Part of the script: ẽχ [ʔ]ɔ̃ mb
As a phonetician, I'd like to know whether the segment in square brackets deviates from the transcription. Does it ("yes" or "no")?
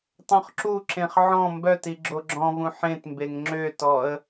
yes